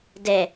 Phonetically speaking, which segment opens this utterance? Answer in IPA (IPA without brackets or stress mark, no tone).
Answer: d